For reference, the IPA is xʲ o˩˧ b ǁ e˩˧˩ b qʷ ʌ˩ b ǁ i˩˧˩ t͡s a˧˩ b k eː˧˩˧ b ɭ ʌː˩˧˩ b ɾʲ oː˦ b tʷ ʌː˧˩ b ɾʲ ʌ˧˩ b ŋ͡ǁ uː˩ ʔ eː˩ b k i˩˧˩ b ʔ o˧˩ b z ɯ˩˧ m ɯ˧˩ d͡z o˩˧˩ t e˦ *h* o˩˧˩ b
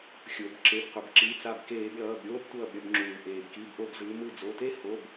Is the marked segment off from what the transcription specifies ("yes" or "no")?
no